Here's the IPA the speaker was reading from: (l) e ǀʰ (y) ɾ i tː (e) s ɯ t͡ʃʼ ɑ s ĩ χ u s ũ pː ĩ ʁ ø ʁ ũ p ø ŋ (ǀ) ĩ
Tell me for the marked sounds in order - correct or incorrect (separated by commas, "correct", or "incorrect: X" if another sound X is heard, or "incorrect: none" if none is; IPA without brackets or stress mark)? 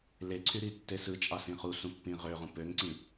correct, correct, correct, correct